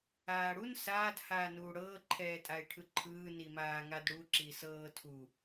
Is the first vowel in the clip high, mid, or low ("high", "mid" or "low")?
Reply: low